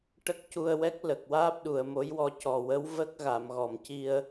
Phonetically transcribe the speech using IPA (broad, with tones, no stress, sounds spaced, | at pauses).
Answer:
ʈ ə˦˥ k̚ c u˧ ə̯ w ɛ˦˥ k̚ l ə˨˩ k̚ w aː˦˥ p̚ ɗ u˨˩˨ ə̯ m o˧˥ j w ɔ˧ c ɔ˨˩ w ə˧˥ w v ə˦˥ k̚ ɣ a˨˩˨ m ɣ ɔ˨˩˨ m c i˧ ə̯